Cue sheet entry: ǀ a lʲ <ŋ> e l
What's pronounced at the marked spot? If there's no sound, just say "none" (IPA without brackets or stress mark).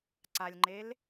ŋ͡ǃ